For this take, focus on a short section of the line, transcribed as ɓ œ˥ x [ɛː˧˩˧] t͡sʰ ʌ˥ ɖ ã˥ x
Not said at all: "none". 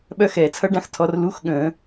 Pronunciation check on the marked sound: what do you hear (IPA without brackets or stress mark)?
ɛː˧˩˧